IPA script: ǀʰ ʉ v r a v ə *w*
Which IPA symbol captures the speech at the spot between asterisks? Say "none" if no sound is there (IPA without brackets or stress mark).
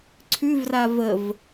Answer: v